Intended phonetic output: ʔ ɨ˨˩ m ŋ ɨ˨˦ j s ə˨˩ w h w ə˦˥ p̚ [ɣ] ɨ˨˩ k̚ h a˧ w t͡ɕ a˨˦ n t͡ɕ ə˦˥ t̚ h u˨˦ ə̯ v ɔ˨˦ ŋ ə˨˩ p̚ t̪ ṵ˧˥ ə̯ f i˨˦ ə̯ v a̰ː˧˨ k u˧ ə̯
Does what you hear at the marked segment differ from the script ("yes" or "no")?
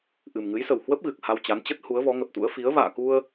no